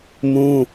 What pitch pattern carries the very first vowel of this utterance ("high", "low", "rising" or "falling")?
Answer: high